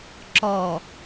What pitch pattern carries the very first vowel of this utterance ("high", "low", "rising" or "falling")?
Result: low